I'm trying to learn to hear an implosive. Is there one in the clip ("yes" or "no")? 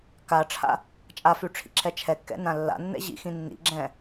no